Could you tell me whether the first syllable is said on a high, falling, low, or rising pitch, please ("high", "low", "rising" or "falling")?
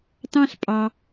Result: high